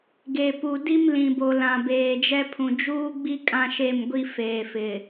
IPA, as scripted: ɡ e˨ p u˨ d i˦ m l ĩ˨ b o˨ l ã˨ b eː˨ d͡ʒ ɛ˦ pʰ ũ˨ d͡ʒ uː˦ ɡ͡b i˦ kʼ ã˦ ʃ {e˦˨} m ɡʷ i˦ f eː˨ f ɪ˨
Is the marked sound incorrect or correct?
correct